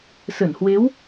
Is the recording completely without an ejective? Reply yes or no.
yes